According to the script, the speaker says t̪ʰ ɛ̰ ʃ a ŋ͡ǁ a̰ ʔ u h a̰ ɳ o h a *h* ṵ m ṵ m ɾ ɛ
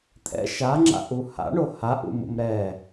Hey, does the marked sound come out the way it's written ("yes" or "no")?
no